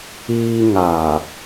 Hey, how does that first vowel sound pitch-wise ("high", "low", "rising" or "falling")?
high